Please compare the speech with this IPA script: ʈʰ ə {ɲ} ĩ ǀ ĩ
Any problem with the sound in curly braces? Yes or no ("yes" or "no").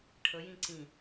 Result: yes